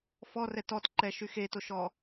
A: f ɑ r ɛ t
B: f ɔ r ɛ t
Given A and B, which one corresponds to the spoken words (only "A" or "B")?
B